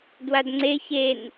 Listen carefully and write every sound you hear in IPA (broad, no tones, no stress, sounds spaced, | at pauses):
d w a d ŋ͡ǀ e ç e n